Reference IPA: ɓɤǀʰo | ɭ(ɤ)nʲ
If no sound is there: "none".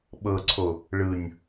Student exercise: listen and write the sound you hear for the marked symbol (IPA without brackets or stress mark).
ɯ